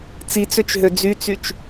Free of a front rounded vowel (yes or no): no